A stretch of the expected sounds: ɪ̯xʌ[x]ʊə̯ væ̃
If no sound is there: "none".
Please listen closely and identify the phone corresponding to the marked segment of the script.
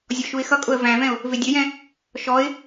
kʼ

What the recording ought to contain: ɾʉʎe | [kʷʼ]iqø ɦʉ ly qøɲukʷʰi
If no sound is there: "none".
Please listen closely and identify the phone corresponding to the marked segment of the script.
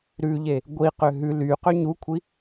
ɡʷ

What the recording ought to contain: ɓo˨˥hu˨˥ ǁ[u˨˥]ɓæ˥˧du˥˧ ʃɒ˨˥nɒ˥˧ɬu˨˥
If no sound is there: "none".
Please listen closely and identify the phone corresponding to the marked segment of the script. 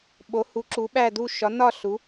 u˨˥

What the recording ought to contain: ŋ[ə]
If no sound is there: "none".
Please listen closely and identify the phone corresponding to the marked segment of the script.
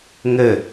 ə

